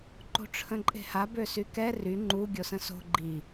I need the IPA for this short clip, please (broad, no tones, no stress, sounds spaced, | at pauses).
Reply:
ǃ o̤ ʈ͡ʂʰ ə̃ ǃʼ e̤ h a b ø s y k ɛ r y ŋ͡ǃ u ɡʲ o s ə̃ s o̤ ɡ͡ǃ i